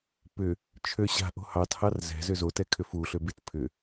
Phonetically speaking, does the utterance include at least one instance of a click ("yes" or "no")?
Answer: no